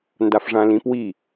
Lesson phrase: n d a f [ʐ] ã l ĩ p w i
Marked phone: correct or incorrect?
correct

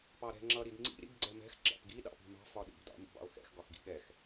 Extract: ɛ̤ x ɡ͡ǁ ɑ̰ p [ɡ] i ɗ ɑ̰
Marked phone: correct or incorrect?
correct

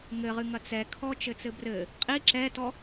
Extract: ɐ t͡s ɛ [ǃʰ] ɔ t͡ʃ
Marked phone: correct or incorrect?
incorrect: kʰ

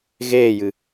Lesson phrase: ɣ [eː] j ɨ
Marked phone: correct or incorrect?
correct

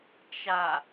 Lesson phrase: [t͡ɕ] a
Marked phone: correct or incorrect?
incorrect: t͡ʃ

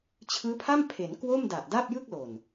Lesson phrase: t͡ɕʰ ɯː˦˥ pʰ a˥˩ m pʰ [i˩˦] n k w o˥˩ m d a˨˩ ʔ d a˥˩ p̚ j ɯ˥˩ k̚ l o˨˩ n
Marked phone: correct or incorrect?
incorrect: e˩˦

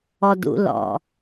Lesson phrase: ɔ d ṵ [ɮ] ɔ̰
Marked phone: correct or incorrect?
incorrect: l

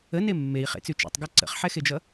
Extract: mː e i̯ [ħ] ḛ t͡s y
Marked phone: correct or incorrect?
incorrect: χ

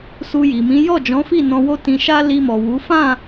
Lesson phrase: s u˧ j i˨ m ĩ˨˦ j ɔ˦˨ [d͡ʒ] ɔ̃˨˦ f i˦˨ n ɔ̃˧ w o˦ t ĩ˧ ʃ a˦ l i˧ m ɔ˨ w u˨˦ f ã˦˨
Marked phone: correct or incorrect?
correct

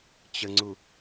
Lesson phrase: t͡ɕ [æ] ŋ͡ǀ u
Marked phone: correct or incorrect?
incorrect: ə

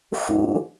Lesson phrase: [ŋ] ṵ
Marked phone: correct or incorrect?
incorrect: x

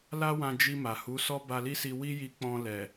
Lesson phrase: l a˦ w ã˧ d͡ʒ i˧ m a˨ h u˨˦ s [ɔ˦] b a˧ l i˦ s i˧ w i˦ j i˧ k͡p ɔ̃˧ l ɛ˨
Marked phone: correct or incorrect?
correct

